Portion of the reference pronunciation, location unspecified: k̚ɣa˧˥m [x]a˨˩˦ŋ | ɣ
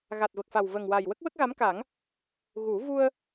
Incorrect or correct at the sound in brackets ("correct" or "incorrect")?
incorrect